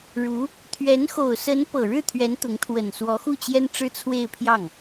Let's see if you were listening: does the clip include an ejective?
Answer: no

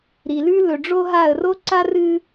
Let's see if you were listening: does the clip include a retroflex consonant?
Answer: yes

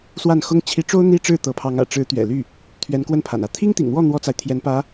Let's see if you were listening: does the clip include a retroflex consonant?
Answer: yes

